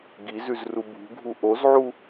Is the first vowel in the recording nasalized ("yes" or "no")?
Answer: no